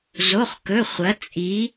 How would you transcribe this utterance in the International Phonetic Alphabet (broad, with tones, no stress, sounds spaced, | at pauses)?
z o˧˥˧ χ k ɵ˧˥˧ χʷ ɐ˧˥ t͡sʼ i˧˥